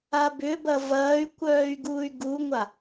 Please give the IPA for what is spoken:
a b ʏ b ɐ v ɐː y̯ kʷ œː y̯ ɡ uː y̯ ɡ u ŋʷ a

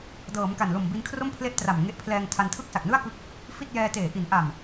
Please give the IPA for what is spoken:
d ɤː˩˦ m k a˨˩ n l o˨˩ m b i˧ n kʰ r o˥˩ m pʰ l e˥˩ ʔ t r a˨˩ m ŋ e˦˥ ʔ pʰ l ɛː˧ ŋ tʰ a˧ n tʰ ɯ˥˩ k̚ s a˨˩ k̚ n ɯ˥˩ a̯ k ɯ˦˥ k̚ | f i˥˩ t̚ j ɛː˧ t eː˨˩ ʔ i˩˦ n ʔ a˨˩ m

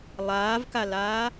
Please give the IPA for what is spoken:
lˠ aː v k a l aː

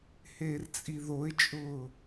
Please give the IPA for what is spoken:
h eː r t͡sʼ i ð o ɪ̯ t͡ʃʼ ʊː

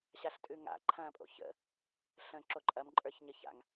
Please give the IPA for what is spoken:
ɕ a ɬ tʼ ʉ ŋ a̰ ǃʰ ɐ̃ː pʼ o̰ ç ə̰ | ɬ ə̃ː ǁ o ǃʼ ɐ m ǃʼ ə˞ ç ɲ ə ç a̰ ŋ

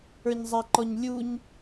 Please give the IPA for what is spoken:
ə˞ ɲ zˤ a ǃ ɔ ɲ lʲ u ɲ

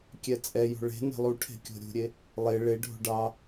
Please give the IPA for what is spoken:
kʲ ɛ t͡sʼ ɛ j o̤ ɭ e̤ n e̤ lˠ u ʈʰ e̤ kʲ o̤ ɾʲ ṳ ɾʲ e | lˠ e ɭ e ɖʱ o̤ ɖ ɑ

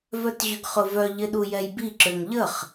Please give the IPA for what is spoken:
v œ t ʑ ʏ ɡ χ ʊ v œ ʎ ɪ ɗ u j ɛ j b i ǁ ø ŋ ʎ ə χ

